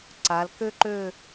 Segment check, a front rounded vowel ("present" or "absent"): present